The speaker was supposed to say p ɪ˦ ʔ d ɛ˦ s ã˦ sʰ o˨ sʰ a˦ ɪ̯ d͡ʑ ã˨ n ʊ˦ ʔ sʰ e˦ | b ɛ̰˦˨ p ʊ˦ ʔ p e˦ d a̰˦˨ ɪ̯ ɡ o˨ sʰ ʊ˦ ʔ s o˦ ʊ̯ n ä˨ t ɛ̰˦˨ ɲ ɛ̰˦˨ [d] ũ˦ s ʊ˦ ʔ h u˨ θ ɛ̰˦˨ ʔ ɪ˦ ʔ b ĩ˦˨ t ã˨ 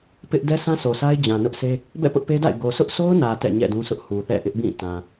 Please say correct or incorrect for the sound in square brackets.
correct